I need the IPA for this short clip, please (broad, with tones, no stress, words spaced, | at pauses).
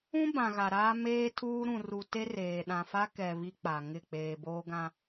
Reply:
ũ˦ bã˨ɣa˨ ɾaː˦meː˦tʰuː˦ ɾũ˨ru˨ te˦reː˨ ɗã˨fa˦ kɛ˨ βi˦k͡pa˨ ŋɪ˦˨k͡peː˨boː˦ ɡã˨